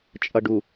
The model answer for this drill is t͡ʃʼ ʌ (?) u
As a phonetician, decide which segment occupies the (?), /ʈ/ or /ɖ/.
ɖ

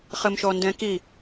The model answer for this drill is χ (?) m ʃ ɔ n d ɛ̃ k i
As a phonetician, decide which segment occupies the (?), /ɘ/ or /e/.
ɘ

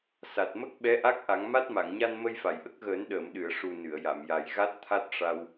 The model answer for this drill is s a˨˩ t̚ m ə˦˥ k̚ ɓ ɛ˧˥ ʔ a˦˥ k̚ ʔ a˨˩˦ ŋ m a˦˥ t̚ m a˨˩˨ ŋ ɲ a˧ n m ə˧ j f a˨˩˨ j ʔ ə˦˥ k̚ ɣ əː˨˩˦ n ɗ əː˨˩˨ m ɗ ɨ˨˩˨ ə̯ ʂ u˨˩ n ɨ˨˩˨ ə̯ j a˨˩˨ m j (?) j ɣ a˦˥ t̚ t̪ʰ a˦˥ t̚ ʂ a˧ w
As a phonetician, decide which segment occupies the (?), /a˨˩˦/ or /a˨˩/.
a˨˩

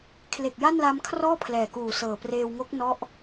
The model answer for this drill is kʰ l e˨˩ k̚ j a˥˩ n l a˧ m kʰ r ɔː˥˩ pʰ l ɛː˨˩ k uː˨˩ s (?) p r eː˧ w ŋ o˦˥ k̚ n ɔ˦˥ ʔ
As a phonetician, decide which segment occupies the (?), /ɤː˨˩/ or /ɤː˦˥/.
ɤː˨˩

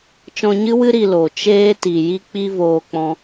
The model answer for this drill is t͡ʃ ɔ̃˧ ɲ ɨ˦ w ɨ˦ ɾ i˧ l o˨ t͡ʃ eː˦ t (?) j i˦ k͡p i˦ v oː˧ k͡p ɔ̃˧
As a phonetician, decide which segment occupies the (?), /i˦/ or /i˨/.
i˨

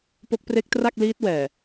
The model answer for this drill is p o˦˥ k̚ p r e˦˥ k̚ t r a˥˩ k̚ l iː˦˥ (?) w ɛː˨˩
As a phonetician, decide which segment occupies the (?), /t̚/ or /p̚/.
t̚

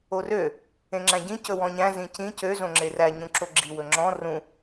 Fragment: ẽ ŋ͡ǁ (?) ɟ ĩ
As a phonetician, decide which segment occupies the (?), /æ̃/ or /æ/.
æ̃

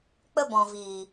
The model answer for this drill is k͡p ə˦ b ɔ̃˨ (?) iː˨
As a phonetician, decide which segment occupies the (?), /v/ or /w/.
v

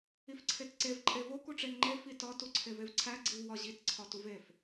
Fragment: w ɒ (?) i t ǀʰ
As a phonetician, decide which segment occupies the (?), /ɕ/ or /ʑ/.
ʑ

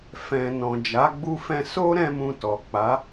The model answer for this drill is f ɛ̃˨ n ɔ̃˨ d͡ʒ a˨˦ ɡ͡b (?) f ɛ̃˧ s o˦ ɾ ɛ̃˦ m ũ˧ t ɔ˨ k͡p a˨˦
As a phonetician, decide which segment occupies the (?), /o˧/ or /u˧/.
u˧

